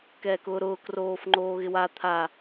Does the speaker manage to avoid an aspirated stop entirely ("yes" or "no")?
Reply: no